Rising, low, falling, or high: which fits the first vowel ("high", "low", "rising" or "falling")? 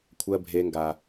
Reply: low